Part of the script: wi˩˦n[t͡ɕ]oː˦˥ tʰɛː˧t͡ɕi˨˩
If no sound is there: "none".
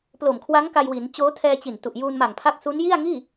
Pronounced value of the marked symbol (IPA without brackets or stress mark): t͡ɕ